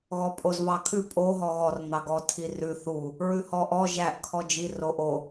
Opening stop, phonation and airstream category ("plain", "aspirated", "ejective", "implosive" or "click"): ejective